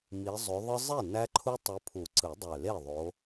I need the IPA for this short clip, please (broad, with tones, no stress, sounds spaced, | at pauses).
m i˨˦ zˤ ø˨˦ ðˤ ɯ˦ zˤ i˥˩ n æ˦ ǃʰ u˦ tˤ ɯ˨˦ pʰ u˨˩˦ ǀ ɯ˨˩˦ dˤ ø˨˩ l e˥˩ ðˤ o˨˦